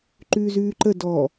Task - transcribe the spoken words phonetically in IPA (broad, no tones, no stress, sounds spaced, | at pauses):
ǃ ʉː z ʉː ǃ ə d ɔ